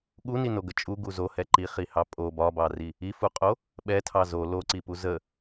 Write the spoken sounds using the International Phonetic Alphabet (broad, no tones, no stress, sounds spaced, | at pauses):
ɠ u n i n o ɡ ə t͡ʃʼ u ɡ u z o h ɛ ǃ i χ i h ɑ pʼ o b ɒ b ɑ r i | i f u qʼ o | ɓ ɛ tʰ ɑ z o l o ǀ i p u z ə